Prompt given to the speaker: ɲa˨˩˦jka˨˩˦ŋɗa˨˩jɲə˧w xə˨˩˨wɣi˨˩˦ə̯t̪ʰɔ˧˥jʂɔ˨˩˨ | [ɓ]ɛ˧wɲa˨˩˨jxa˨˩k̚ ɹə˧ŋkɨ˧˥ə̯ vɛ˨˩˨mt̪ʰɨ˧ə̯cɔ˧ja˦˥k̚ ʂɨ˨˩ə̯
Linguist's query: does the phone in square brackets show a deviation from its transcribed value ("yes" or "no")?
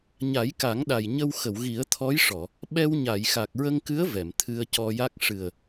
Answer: no